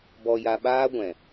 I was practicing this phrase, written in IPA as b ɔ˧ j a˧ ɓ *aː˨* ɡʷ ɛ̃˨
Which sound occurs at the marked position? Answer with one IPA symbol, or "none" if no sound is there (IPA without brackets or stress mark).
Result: aː˦